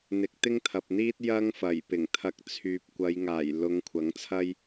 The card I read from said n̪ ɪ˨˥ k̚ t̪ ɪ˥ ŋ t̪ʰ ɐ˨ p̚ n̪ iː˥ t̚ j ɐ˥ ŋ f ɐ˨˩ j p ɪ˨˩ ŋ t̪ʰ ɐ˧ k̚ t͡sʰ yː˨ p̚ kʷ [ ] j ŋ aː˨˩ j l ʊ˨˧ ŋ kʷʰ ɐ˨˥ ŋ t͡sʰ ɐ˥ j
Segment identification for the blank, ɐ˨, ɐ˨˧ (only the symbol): ɐ˨˧